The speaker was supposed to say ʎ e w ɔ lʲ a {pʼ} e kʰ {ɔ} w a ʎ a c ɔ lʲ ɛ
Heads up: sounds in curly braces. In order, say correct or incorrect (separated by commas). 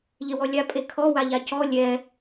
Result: correct, correct